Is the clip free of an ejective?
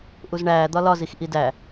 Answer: yes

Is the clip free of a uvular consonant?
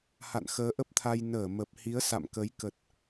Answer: yes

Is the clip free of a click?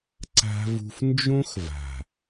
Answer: no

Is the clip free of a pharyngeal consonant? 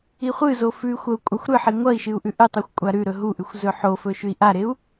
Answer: no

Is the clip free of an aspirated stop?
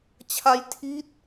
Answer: no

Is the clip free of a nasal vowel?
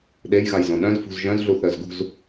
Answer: no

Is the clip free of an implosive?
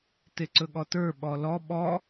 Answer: no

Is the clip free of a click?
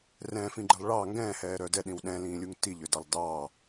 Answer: no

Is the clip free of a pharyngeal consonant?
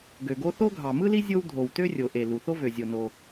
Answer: yes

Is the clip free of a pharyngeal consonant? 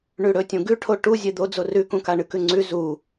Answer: yes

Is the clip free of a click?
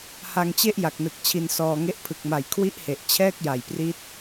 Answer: yes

